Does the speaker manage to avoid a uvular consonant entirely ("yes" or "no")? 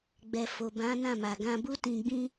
yes